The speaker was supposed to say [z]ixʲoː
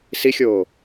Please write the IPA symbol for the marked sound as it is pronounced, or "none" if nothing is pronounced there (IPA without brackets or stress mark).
s